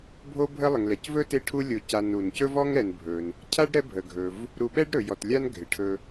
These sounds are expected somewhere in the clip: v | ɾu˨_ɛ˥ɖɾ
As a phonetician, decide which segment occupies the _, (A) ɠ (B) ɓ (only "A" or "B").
B